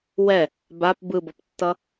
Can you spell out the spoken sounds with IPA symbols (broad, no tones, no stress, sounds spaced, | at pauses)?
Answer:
w ɛ | b a p b ɯ b ʌ p tː ʌ